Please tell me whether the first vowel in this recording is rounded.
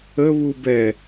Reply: no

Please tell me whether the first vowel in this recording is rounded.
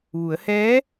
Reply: yes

